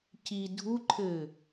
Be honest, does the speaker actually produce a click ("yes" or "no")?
yes